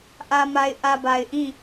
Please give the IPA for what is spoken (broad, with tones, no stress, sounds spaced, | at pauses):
ʔ ä˨ m a˨ ɪ̯ ʔ ä˨ b a˨ ɪ̯ ʔ ĩ˦˨